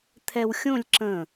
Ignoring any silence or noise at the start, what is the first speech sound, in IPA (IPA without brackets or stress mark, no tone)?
t̪ʰ